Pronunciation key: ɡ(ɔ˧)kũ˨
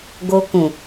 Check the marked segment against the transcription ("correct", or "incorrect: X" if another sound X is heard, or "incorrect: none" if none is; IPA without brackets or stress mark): incorrect: o˧